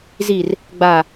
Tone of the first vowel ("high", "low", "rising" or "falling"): low